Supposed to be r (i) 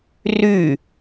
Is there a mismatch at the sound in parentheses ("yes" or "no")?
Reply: yes